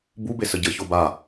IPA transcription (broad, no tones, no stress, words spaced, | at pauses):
bube səɟə çoba